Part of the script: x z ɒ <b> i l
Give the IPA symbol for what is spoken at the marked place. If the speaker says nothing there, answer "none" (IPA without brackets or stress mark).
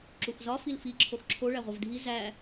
f